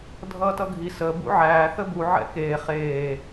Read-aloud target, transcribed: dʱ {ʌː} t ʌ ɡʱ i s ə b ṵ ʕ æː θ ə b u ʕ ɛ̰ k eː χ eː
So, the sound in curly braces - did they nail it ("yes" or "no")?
yes